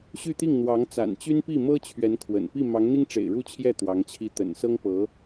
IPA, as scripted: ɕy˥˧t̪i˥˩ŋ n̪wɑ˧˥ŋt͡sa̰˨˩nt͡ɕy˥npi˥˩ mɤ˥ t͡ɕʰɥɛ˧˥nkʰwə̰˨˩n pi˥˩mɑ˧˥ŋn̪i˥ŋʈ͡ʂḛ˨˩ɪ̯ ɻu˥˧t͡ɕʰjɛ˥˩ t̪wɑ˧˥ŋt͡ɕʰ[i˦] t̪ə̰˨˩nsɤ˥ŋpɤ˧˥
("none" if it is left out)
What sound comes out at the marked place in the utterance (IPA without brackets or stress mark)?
i˥